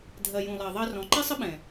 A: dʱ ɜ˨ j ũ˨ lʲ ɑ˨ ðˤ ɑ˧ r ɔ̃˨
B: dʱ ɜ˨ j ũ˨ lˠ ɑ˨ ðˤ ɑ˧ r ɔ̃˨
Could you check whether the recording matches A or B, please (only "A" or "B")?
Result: B